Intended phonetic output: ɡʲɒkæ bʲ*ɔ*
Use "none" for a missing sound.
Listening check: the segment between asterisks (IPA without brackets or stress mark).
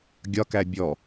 ɔ